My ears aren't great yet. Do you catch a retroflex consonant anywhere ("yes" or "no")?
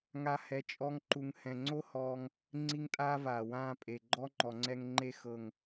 no